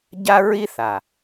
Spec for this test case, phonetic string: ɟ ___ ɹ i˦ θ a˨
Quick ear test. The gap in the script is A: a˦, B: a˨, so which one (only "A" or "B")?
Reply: A